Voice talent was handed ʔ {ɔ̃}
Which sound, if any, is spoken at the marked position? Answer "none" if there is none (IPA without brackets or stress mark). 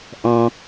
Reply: ɔ̃